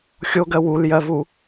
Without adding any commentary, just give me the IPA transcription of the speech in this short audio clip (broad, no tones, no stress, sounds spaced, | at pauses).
xʲ o ɡ ɜ w u l j ɜ v u